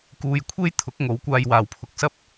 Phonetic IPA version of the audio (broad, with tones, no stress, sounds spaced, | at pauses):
k uː˧ j kʷʰ e˥ j t̪ʰ ʊ˨˥ k̚ ŋ o˨˥ w kʷ aː˧ j w aː˨ w pʰ ʊ˧ k̚ s ɐ˥ p̚